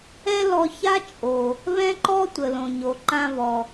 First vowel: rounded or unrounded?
unrounded